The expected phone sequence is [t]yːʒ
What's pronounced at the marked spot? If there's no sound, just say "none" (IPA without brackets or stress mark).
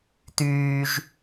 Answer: t